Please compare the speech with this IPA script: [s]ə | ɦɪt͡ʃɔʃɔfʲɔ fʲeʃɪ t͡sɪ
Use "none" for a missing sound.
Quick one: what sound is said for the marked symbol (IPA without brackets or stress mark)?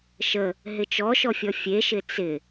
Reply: ʃ